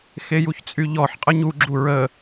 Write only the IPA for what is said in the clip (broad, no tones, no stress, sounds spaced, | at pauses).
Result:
x e j u ç t͡sʼ y ʎ ɔ ħ qʼ ə ɲ u ɡ͡ǁ u ɹ ə